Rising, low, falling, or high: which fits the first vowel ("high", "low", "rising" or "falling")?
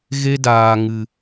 high